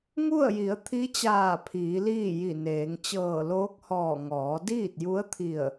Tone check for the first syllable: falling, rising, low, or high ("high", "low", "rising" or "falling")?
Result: falling